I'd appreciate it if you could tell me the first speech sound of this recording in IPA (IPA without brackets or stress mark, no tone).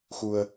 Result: x